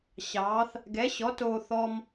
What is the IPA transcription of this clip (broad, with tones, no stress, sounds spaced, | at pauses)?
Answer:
ɕ ɑː˨˥ θ | ɡ ɛ˨˥ ɕ ɔ˨˥ t oː˧ θ ɔ˧ m